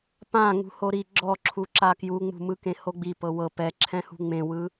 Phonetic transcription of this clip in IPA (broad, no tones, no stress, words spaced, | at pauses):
pã ŋṳhoɾi ɡ͡ǁɔǁʰu ǁakjuŋ͡mṳ mɯkẽhoɡ͡bi pɤwɤ pɛǁʰɛ̃hṳ ŋ͡mẽwɯ